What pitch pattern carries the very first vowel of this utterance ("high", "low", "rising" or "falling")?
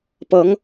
rising